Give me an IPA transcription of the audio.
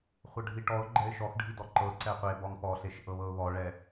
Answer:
χʷ ɤ ɖʱ i ʈ ɔ ʊ̯ ɡ͡ǃ ɛ ɪ̯ ʃ ɔ x ɖʱ i d ɔ ǃ ɤ ǀ ɛ qʷ e b ɔ ŋ p ɔ ɬ e ʃ ʔ ɤ β ɤ ʊ̯ β ɔ ɭ ɛ

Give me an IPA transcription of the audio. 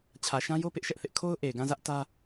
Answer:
t͡ɕʰ ä˨ ʃ ã˦ j o˦ p ɪ˦ ʔ ʃ ɛ˦ ʔ θ ɪ˦ ʔ kʰ o˦ ʊ̯ ʔ e˨ ɪ̯ ɡ ã˦˨ z ä˦ ʔ t ä˦

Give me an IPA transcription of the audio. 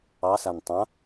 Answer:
ɑ s a n tˤ ã

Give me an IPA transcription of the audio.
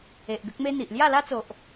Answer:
e˨ ʔ ɡ ə˦ k̚ m e˦ n̪ i˨ ʔ l j a˥˧ l a˦ t͡s o˨ ʔ

